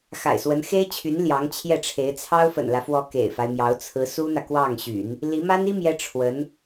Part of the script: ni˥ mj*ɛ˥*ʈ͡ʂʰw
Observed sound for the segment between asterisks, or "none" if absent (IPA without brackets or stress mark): ɛ˥